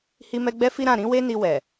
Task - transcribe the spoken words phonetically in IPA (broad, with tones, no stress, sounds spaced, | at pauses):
h i˦ m ɛ˦ ɡ͡b ɛ˦ f i˦ ɾ ã˦˨ ɾ ĩ˨˦ w e˦ n i˧ w ɛ˨